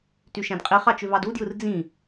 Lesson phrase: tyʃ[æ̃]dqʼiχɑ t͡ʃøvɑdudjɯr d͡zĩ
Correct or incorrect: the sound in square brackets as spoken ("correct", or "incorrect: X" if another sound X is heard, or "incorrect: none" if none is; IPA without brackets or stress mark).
correct